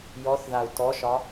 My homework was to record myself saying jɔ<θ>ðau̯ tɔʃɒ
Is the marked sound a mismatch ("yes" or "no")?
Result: no